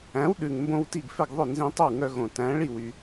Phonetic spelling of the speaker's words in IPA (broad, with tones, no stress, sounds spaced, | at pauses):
æ̃˩˥ w ɗ ʉ˩ ŋ m b õ˧ w t i˥˩ ɡ f ɛ˥˩ ɡ ðˤ ɵ˥˩ n z ĩ˧ tˤ o˥˩ w ŋ œ˧ ɣ õ˩ t æ̃˩˥ ɭ i˥˩ w y˩